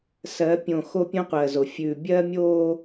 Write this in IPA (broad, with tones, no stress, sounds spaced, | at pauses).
s ɜ˨˦ pʲ õ˨ x o˦ pʲ õ˦ qʷ ɜ˨ z o˨ fʲ ʉ˨ bʲ ɜ˦ mʲ o˦